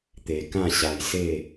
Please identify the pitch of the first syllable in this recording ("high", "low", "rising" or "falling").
low